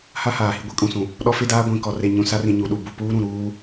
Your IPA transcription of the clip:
h a˦ h aː˨ h i˦ ɡʷ i˦ kʼ ũ˨ s ũ˨ | ɗ ɔ˦ f e˦ d aː˦ ɡʷ ĩ˨ k ɔ˨ r e˨ ɲ ũ˨ s a˦ r ĩ˨ ɲ u˨ ɗ u˨ b u˨ p uː˦ ɾ ũ˨ ɾ uː˦

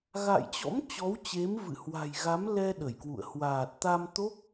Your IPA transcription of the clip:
ɣ a̰˧˨ j t͡ɕ ɔ̰˧˥ m t͡ɕ ɔ˨˦ w t͡ɕ e˨˦ m v ɨ̰˧˨ h w a̤˨˩ j ɣ a˨˦ m l ɛ˧ ɗ ə˧˩ j k w ṵ˧˨ ə̯ h w aː˨˩ t̚ t̪ a˧ m t̪ o˦˥ k̚

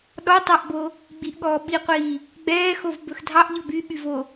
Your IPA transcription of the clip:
ɗ ɔ tˤ ɑ ʔ b o | ɡ͡b i ʔ ɠ ɔː ɓ i qʷ iː | ɡ͡b ɛː x o v b ɵ x dʱ ɑ ʔ ʎ ɔ b y ɓ y v o

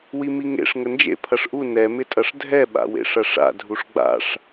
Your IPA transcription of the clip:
w i m i ŋ ḛ ʂ ŋ ə n d͡ʒ ḛ pʰ ɐ ʂ ʔ u n ɛ m ɪ tʼ ɐ ʂ dʱ ɛ ɓ a̰ w ḛ ʂ ɐ ʂ a̰ dʱ u ʂ ɡ͡b a̰ ʂ

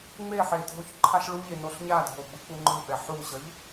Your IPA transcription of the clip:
ŋ͡m e ħ e dʱ o ç ǃʰ a ɬ ɭ u ʎ e n o ɬ ɲ a dʱ o ɡ͡b ɯ k͡p u ŋ͡ǃ ɯ ɓ ɛ ħ u ɕ ʌ ʎ

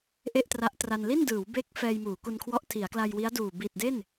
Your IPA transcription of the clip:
ʔ e˥˩ ʔ t r a˦˥ ʔ t r a˧ n l i˥˩ n d ɯː˩˦ w b e˦˥ k̚ f ɛː˧ j m uː˩˦ k u˧ n kʰ w ɔ˦˥ ʔ tʰ i˩˦ a̯ k l a˧ j w i˦˥ a̯ d uː˨˩ b i˨˩ t̚ d e˥˩ n

